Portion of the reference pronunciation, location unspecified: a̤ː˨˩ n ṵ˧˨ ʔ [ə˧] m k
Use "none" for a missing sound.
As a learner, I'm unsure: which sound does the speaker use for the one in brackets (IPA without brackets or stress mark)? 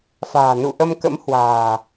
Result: ə˧